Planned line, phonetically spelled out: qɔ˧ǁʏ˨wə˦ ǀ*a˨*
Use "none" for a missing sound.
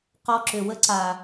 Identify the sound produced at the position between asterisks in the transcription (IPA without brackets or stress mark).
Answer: a˨